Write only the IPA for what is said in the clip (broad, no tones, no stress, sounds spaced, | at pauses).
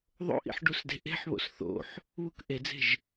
ðˤ o̰ ʔ ḭ ħ ɖ u s d e̤ ʔ e̤ ħ β o̰ s θ o̰ ħ | β u k ʔ e d͡z e̤ ʒ